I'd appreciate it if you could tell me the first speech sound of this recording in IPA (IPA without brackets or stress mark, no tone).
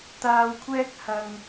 t̪